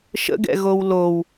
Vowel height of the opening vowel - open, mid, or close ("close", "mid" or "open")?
mid